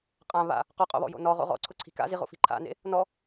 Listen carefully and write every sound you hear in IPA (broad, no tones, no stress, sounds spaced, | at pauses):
qʼ ã β a̰ | q ɔ qʼ o̰ β ɔ̰ j o̰ n ɔ ʁ o̰ ʁ ɔ̰ ǀʰ ʊ ǀʰ i̤ k a̰ z i ʁ o̰ f i̤ ǃʰ a̰ n ḛ | n ɔ